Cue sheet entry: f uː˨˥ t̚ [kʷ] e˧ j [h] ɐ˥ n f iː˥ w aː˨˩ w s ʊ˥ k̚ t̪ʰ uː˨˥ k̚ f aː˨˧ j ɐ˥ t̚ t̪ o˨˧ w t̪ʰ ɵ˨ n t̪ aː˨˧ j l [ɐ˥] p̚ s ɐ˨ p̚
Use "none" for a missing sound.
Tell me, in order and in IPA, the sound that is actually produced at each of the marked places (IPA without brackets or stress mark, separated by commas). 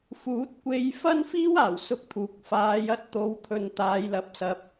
kʷ, f, ɐ˨